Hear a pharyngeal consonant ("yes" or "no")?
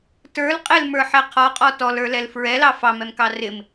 yes